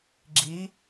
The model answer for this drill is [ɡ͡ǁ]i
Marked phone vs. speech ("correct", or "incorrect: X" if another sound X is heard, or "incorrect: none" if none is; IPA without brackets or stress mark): correct